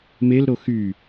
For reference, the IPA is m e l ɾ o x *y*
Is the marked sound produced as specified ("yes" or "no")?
yes